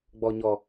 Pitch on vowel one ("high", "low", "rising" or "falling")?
low